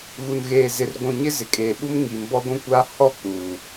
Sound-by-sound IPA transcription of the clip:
ɣu˨nɣeː˨zɪ˨r ɡʷũ˨ ɲɪ˦zɪ˨˦kʼeː˨ɓu˦m ŋiː˨mbɔ˦ɡʷũ˦kʷaː˦ hɔ˦˨ k͡puː˨

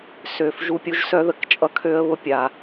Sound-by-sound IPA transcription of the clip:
sø˩f ʒu˦pʲu˦ʒsœ˥ðə˩k t͡ʃʼʌ˥ kʰø˥ə̯βʊ˥pʲa˩

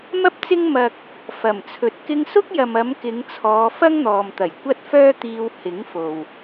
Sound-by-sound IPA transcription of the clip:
mɐ˥p̚t͡sɪ˥ŋ mɐ˧k̚ | fɐ˨˩mt͡sʰɵ˨t̚ kɪ˧ŋsʊ˥k̚jɐ˨mɐ˨˧m kɪ˨˧ŋt͡sʰɔː˨˧ fɐ˥ŋn̪ɔː˨mt̪ɐ˨˩j kʷɐ˥t̚fœː˥t̪iː˧w hɪ˨˥ŋfo˨w

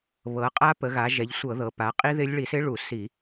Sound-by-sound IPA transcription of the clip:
βɤ˩˧qʼa˦˥ pə˩˧ɣa˩˧ʒɛ˩˧ʎ sʷɤ˧˩˧ðɤ˩˧pa˩˧qʼi˦˥ ðɪ˦˥lʲ ɭi˧˩˧sɪ˦˥ɭu˧˩˧ si˧˩˧

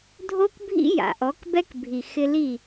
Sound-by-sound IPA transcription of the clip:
dʱo˦kbʱḭ˦ ja̰˨ʔɔ˨˦kbɛ˦kbʱi˨ xɪ˧li˦˨

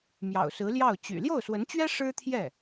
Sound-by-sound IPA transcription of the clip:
mjɑ̰˨˩ʊ̯sɹ̩˧˥ljɑ˥˩ʊ̯ t͡ɕy̰˨˩ ljo˥˩ʊ̯swə˧˥nt͡ɕɥɛ˥ ʂɻ̩˥t̪ʰjɛ˥˩

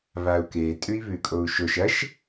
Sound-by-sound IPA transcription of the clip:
βau̯ke tʼʉi̯βʉkʼou̯ʃoʃ ɐʃ

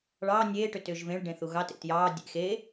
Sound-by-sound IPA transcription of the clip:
ɭɑː nʲeː ʈʏtʏːʒvẽɭ ɖẽθuɣɑt ḛtjɑː dʲḛ xeː

